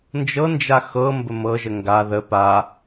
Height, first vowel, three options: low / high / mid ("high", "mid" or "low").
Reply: mid